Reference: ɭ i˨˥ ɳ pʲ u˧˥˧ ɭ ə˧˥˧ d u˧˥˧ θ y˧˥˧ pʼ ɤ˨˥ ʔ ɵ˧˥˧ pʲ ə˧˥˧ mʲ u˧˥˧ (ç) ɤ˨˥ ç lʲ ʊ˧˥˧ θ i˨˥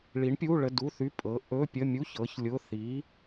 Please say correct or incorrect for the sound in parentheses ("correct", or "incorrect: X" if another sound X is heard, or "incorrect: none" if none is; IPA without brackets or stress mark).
correct